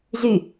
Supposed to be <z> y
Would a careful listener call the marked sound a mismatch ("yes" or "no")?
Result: no